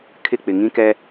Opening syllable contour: falling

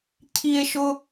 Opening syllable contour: high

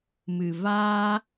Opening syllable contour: low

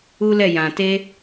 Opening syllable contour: high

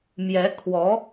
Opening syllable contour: rising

